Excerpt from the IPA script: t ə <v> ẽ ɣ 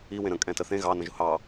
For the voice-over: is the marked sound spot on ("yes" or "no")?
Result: no